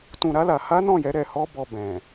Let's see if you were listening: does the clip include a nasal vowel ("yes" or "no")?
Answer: yes